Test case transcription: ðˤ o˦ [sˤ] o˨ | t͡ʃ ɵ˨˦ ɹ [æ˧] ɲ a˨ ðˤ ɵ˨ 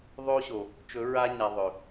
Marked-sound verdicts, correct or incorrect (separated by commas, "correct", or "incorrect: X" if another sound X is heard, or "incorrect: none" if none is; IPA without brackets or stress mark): incorrect: ɕ, incorrect: a˧